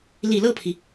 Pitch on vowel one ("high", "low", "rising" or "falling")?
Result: low